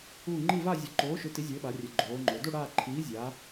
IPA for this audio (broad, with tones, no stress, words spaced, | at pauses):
uː˥˧ ŋ͡ǃi˥˧va˥˧ zʲɘ˨˥ ǃoː˨˥ʃʏ˨˥ ti˨˥zʲɘː˨˥ɓa˩˧ rʲɘ˩˧ ɡ͡ǃoː˩˧ŋ͡ǃo˩˧ do˥˧ ɽaː˥˧ ǃʰiː˨˥zʲaː˩˧